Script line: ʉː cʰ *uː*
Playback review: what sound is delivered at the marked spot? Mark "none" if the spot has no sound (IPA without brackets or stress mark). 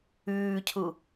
u